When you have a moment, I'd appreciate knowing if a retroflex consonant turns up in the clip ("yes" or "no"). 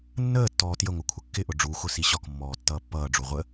yes